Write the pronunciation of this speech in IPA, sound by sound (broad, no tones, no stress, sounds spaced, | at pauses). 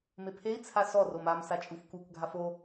m e pʰ e i̯ t͡sʰ a s ɔ r o m a m s a t͡ʃʼ u f k u k ɡʱ a f o